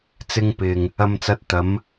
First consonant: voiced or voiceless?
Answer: voiceless